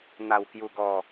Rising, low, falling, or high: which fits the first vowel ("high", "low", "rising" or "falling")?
low